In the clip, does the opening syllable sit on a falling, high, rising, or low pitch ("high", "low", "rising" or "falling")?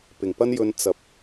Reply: low